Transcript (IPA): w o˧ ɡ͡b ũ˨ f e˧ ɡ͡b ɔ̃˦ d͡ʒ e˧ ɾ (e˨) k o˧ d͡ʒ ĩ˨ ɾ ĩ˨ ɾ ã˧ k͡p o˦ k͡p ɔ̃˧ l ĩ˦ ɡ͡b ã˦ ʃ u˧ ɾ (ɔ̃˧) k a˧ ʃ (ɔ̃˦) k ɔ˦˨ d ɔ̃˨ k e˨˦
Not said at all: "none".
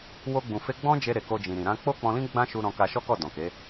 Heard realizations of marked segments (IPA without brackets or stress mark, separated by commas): e˨, ɔ̃˧, ɔ˦